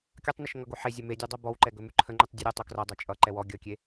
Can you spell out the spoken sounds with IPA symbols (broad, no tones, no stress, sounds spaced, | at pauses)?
kʲ ʌ tˤ n ə ʃ ŋ ʌ ɡ o ħ e zʲ ɛ m e dʲ ɛ dˤ ɐ b ɔ w ǃ ɛ ɡ ɵ m ʉ ǃʰ ə ŋ͡ǃ ʉ tˤ dʲ ɵ ɾʲ ʌ tˤ o k r ʌ dˤ ɐ t͡ʃʼ ʌ ǃ ɛ w ɔ ɡʲ ʌ kʲ e